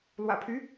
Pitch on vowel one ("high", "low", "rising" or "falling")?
low